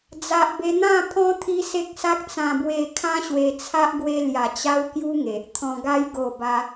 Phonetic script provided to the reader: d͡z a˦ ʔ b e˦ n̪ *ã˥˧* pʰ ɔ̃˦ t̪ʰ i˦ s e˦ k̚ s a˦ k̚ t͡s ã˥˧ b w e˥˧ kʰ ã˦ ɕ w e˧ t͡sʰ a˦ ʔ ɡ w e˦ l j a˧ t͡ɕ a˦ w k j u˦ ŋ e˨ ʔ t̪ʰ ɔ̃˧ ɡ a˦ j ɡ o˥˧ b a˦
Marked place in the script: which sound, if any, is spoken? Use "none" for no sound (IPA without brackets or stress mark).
ã˥˧